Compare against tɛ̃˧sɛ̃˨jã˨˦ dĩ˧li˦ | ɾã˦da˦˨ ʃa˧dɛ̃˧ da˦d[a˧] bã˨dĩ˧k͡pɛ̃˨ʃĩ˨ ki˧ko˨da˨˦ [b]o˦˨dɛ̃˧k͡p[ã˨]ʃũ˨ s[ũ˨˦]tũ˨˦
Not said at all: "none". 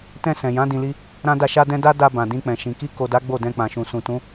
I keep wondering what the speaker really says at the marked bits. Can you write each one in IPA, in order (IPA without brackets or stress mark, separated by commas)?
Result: a˧, ɡ͡b, ã˨, ũ˨